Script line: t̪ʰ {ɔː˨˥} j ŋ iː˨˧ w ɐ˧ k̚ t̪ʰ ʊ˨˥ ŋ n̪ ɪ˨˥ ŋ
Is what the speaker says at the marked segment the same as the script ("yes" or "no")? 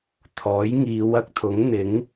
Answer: yes